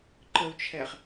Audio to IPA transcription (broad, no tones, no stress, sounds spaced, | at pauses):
ǃ ə u̯ t͡ʃʰ ɛ χ